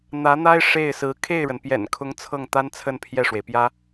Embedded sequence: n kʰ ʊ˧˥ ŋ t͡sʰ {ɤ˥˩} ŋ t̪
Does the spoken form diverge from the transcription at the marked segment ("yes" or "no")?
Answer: no